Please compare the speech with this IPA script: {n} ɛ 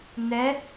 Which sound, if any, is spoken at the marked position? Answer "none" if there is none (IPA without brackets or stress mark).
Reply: n